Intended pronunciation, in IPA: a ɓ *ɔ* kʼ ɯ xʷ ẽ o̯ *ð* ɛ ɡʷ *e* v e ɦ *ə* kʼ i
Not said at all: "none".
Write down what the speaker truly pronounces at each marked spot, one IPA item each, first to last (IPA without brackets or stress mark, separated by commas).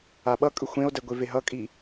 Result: ʌ, d, e, ʌ